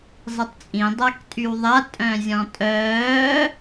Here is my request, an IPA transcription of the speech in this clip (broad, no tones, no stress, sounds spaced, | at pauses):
zˤ i tˤ t͡sʼ ĩ dˤ a k tʼ y w ðˤ a tʼ œ̃ zʲ ɔ̃ tʼ œː